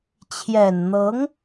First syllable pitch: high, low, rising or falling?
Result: low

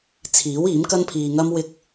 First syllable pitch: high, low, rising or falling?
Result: rising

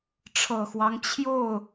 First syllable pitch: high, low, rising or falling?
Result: low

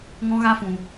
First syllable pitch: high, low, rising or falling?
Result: high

